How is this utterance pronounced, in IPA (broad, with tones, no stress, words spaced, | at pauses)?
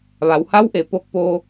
ʋa˩˧wha˧˥wʔe˩˧ po˧k̚poː˧